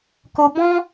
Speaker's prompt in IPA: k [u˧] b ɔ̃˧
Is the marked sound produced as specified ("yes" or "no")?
no